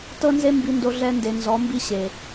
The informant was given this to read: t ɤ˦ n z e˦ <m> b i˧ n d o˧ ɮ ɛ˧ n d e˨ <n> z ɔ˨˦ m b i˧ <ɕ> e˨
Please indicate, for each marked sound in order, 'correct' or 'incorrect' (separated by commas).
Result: correct, correct, correct